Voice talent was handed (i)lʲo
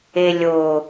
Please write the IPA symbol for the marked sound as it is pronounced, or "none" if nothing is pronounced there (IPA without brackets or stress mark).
e